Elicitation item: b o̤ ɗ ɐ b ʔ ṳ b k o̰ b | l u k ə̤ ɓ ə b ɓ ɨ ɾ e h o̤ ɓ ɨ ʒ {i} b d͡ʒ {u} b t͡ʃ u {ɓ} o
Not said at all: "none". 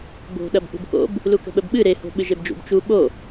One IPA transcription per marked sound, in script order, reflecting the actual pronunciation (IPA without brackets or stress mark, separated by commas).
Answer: e, ṵ, ɓ